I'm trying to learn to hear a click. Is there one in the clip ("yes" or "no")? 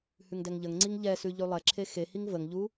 yes